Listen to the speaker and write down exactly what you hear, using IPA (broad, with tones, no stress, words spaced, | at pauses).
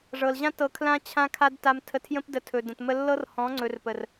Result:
ʐɤ˨lʑã˦ tɤ˧kʰlã˦ t͡ɕʰã˦kʰa˦d ta˧m tʰə˧tʰjə̃˦p də˧tʰɵ˨də̃˨t mə˧lːɤ˦r hɔ̃˨˦ŋ͡ǀɵ˨rpə˨r